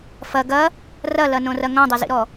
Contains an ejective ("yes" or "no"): no